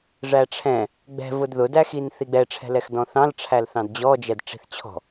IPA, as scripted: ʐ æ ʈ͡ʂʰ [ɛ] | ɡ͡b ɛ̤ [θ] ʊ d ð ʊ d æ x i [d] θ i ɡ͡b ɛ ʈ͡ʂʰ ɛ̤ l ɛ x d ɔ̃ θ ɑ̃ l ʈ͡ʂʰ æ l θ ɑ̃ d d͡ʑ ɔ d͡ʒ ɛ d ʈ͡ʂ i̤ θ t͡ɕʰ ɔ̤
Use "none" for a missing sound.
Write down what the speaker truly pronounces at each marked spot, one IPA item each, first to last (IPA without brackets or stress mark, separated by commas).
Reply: ɛ̃, v, n